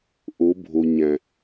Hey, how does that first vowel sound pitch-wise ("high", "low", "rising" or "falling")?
rising